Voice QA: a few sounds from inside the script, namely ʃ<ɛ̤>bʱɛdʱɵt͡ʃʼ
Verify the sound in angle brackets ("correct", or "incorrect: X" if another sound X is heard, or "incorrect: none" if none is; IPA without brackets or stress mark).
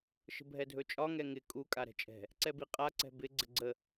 incorrect: ə̤